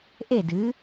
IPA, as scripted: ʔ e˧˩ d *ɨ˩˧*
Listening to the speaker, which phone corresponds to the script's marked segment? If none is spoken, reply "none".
ɨ˩˧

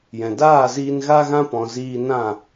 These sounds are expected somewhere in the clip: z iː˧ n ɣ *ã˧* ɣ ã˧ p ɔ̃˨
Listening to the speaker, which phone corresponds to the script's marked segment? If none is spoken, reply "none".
a˧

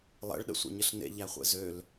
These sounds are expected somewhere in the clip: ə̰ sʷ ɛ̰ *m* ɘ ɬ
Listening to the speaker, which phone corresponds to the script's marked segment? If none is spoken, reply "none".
ɲ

